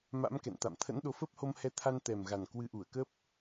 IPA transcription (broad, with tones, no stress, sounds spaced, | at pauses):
m a̰˧˥ m k ɛ̰˧˨ n t̪ a̰˧˨ m t̪ʰ ə̰˧˥ n ɗ o˨˦ f əː˦˥ p̚ h o˧ m h ɛ˧ t̪ʰ a˧ n t̪ ɛ˨˩ m ɣ a˨˩ n k w ɨ˨˦ ʔ u˧˩ ə̯ k ə˦˥ p̚